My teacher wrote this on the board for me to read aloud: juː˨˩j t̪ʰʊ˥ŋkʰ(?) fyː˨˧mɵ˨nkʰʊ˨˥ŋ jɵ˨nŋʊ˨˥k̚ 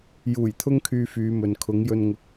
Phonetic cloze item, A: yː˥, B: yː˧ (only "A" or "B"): B